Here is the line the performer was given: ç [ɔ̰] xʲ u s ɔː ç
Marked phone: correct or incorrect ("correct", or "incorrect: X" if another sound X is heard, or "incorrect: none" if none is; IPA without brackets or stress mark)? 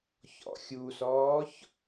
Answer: correct